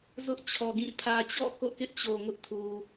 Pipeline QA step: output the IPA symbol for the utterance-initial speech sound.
z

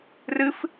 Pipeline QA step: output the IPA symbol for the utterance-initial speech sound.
r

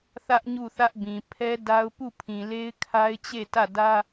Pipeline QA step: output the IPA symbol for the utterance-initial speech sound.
θ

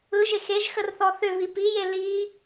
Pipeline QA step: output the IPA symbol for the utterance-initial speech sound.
ɯ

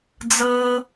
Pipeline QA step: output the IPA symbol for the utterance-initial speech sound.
d͡z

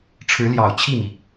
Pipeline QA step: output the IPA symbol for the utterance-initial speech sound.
ʈ͡ʂʰ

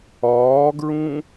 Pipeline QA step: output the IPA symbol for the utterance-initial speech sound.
ɒː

